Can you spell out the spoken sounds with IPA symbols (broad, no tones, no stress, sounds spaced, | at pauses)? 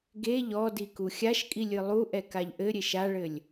ɡ e ʎ ɔ d i k u xʲ a ʃ kʼ i lʲ ɨ lˠ u ʔ ɛ k a ʎ ʔ ɘ ɾʲ e ʃ a ɭ ɘ lʲ